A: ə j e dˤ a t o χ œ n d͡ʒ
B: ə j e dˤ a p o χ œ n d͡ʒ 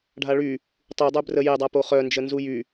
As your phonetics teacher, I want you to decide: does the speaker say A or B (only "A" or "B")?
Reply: B